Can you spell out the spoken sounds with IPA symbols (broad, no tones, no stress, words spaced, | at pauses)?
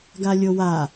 ɡalʲowa